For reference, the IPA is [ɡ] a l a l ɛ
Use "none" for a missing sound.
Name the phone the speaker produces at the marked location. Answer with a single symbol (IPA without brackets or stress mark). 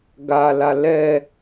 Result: ɡ